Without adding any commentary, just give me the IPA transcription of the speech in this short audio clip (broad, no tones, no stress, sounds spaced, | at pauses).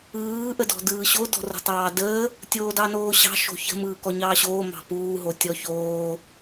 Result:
ɯː ʔ ə d ɔ̤ d ɯː ɕ o d ɔ̤ r o̤ tˤ ɑː d əː | tʲ oː d ɑ n oː ɕ ɑ̤ ʃ o̤ ç ə̤ m ɯː k ɔ ɲ ɑː ɕ oː m ɑ̤ p uː ɦ o tʲ ɔ ç oː